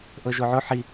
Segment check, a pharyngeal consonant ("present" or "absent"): present